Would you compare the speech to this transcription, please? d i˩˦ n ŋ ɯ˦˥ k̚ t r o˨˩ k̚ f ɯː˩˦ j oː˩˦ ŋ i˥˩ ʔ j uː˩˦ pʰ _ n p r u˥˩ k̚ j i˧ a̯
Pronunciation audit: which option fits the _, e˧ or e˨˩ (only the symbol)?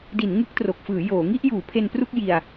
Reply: e˧